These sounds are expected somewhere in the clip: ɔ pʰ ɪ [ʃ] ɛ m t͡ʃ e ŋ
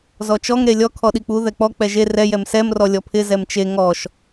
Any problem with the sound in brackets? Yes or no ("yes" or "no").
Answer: yes